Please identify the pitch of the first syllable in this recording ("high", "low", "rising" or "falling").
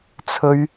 high